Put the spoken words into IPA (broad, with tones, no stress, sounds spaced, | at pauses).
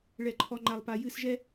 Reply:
ɭ ɛ˨ ǃʰ ɔ˨ ŋ͡ǃ a˨ lˠ p a˨ j ɨ˦˨ s ʒ ɛ˦